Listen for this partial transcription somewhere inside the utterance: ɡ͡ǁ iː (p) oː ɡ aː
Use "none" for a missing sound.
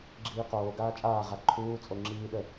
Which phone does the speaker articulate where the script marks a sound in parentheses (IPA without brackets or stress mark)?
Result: q